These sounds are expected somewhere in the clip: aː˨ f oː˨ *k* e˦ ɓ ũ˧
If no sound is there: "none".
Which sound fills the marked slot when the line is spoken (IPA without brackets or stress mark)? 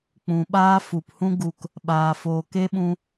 k